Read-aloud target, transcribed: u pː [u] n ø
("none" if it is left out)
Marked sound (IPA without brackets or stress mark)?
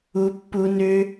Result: u